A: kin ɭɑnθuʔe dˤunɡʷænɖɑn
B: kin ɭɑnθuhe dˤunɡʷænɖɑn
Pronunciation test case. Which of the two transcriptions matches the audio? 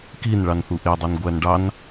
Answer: A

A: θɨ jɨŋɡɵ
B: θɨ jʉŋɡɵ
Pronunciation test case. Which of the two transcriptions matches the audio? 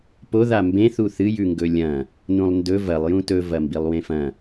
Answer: B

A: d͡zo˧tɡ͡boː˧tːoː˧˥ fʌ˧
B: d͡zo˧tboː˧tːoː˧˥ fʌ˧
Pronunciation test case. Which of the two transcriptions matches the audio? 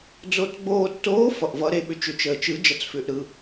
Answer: A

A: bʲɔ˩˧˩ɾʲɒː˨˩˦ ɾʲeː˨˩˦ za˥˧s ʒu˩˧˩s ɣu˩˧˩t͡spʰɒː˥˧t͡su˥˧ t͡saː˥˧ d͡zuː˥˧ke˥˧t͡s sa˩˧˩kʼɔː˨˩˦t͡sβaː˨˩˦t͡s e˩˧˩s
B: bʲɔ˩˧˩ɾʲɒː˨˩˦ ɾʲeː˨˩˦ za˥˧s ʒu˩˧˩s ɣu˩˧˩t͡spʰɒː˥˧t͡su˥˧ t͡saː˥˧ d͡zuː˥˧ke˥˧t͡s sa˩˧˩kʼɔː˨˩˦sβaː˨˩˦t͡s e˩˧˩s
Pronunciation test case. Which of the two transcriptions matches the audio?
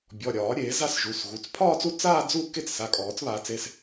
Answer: A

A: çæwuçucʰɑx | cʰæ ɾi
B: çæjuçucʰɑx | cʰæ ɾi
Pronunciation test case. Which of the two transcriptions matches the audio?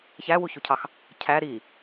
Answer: A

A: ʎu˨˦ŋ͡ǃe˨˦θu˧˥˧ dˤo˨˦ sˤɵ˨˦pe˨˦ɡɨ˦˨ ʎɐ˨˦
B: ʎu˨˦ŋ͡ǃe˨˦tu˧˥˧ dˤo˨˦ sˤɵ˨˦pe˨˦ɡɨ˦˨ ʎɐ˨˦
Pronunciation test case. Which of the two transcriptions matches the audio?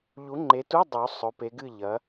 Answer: B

